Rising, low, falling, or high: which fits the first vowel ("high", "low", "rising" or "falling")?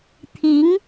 rising